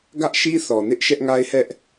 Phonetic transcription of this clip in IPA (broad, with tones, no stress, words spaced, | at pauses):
ɡä˦ʔʃi˦θɔ˨nɪ˦ʔ ʃɛ˦ʔŋa˦ɪ̯hɛ˦ʔ